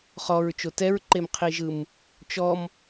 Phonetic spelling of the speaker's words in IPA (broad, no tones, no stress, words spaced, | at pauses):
χɔɹt͡ʃo tɛɹǃemqʰiʒɯm | t͡ʃɔm